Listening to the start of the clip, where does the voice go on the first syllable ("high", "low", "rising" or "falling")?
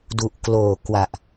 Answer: low